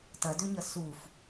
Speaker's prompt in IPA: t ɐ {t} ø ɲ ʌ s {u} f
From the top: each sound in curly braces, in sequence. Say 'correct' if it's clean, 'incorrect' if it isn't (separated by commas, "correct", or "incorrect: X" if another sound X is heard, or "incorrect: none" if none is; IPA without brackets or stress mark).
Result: incorrect: d, correct